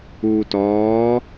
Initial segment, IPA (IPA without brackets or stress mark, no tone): uː